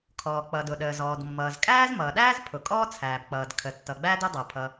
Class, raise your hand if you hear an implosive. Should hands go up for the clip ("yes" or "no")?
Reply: yes